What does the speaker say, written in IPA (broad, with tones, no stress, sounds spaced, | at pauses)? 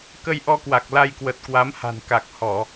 k ə˧ j ʔ ɔ˧ k w a˨˩ k̚ l a˧ j k w ə˨˩ t̚ k w a˨˦ m h a̤˨˩ n k a˨˩ k̚ h ɔ˧˩˨